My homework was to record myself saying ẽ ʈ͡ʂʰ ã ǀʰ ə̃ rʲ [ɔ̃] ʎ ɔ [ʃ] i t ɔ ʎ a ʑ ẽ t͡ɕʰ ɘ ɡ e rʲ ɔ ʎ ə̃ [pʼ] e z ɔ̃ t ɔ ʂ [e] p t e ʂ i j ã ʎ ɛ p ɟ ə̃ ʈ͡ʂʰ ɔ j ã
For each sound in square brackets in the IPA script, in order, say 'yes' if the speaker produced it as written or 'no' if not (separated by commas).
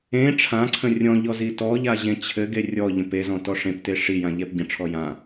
yes, no, no, no